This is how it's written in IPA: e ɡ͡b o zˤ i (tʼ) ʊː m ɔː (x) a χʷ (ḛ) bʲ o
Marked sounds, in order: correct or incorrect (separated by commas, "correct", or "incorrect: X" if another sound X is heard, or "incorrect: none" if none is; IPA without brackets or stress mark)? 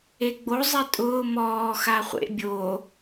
correct, correct, correct